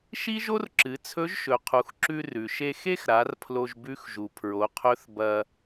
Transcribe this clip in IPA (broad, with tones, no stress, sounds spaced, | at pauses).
ʃ i˥ ʒ o˥ r ǁ ɨ˩˧ t͡sʰ ɵ˧˥ ʒ ʃ ɵ˩˧ qʰ u˩˧ x ǁ ʉ˧ r ʉ˩ ʃ e˧ x e˥ x ɾ a˩˧ r pʰ l o˧ ʒ b ʉ˧˥ x ʒ u˩ pʰ ɹ o˩˧ qʰ ɵ˧˥ θ b ɐ˧